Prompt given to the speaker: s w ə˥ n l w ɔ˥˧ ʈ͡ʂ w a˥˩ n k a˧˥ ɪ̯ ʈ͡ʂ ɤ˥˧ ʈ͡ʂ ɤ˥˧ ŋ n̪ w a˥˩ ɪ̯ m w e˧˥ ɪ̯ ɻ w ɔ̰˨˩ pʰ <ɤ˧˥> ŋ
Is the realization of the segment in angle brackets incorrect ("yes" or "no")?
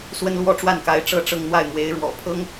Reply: yes